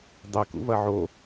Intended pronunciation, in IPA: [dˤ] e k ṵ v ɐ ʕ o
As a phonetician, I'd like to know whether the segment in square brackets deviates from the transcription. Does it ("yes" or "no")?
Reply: no